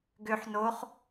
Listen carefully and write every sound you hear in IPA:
ɡ ø ħ n o χ

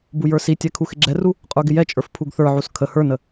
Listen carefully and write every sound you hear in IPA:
b u j ə˞ s i tʲ ɛ kʰ u x ɪ ɡ͡ǁ ɛ r u | qʼ ə˞ ɡ ɪ j ɛ t͡ʃʼ ə˞ f pʰ u ɡ θ ə˞ ʕ u s kʰ ə h ə˞ n ə

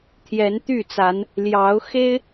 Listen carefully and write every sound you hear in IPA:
t̪ʰ j ɛ˨˦ n t̪ y˥˨ t͡s a˨˦ n | l j ɑ˨˦ ʊ̯ x e˦ ɪ̯

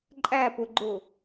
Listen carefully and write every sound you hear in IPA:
ǃʼ æ p ʊ ɡ͡ǃ ʊ

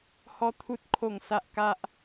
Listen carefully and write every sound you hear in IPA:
h ɔ˦ t̪ʰ u˦ t̚ kʰ o˥˧ ŋ s a˦ ʔ k a˦ ʔ

